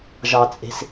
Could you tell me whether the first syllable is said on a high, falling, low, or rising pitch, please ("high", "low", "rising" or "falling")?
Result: low